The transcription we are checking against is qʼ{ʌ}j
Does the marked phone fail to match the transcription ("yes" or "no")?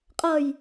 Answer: no